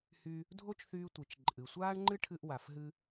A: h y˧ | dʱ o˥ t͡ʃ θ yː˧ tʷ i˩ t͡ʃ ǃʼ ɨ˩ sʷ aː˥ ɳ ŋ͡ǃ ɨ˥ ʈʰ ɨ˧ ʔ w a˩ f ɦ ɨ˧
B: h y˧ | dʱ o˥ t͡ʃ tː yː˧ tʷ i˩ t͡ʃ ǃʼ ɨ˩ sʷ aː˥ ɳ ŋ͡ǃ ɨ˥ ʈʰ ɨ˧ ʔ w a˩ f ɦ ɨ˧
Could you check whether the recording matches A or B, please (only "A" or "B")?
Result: A